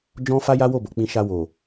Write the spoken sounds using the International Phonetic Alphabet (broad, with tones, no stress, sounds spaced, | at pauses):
d͡ʒ ɔ̃˦ f a˦ j a˦ w o˦˨ b o˨ k͡p ĩ˧ ʃ a˧ w o˨